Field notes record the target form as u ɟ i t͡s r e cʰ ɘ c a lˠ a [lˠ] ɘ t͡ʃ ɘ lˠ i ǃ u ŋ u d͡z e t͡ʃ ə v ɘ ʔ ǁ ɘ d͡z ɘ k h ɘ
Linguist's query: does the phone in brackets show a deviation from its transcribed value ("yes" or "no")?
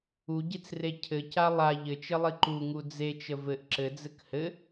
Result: yes